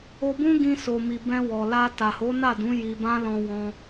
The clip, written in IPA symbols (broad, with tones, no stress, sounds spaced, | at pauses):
o˧ b ũ˦ ɡ ĩ˧ s o˨ m i˨ b ɛ̃˧ w ɔ˨ l a˧ t a˨ h o˨˦ n a˦˨ d ũ˨˦ j i˧ b ã˦ l ɔ̃˧ w ɔ̃˧